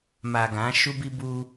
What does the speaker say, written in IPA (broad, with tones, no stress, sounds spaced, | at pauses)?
m a˨ ɡ ã˨˦ ʃ u˦ b i˦ b u˦